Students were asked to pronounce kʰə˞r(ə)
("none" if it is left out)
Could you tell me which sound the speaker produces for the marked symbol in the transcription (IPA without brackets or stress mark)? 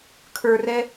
ɛ